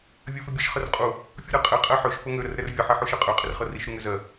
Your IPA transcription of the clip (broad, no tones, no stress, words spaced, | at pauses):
vʲɜfɪbʲəʃ χərqʼu | fʲuɾɜqʼɛ qʼɜħøʃ fɤŋø ɾərɾɛrvʲɤ ħɛħuʃɛqʼø qʼɪrχɤriʃ ɾuŋøzɜ